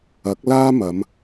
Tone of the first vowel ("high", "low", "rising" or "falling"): rising